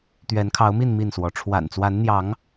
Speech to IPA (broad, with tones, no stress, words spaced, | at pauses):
t̪ɥɛ˨˦nkʰɑ˨˦ʊ̯mi˥˨n mi˥˨nswɔ˨˦ ʈ͡ʂʰwa̰˨˩nt͡swa˨˦nn̪jɑ˨˦ŋ